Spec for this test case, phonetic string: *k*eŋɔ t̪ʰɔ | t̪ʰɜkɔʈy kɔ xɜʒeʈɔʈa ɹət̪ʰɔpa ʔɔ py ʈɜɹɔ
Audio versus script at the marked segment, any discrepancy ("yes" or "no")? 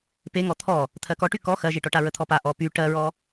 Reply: yes